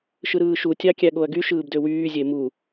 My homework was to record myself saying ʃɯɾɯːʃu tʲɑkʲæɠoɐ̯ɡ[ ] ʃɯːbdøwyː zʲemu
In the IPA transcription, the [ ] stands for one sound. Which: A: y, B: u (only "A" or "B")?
A